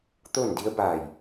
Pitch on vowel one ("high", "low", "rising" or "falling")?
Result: falling